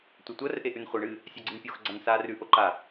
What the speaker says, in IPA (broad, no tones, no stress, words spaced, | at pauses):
tʷɐtʷɐr ʔeʔʉnχʷɐ ɳɨ | sʲaɡ͡ǀɨnpʲox ɡ͡ǀansaːrʉ ʔoǃa